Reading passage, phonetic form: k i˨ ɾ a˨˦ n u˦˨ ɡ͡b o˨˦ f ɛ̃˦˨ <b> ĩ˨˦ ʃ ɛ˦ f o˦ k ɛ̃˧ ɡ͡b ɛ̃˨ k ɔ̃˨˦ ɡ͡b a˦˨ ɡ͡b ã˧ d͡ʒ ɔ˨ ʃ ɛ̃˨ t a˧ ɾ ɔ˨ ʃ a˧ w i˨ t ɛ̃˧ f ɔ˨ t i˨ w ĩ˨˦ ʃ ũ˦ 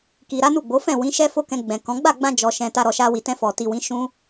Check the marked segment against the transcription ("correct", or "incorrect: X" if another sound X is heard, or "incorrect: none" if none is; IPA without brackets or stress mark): incorrect: w